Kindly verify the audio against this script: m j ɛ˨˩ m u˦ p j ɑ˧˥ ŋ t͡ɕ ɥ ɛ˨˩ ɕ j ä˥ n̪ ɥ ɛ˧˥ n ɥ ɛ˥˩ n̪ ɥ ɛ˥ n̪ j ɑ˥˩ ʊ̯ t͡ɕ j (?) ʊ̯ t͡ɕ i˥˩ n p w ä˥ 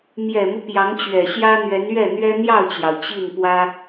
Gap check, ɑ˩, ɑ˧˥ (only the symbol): ɑ˩